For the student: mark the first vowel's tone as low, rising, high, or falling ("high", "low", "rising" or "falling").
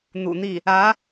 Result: low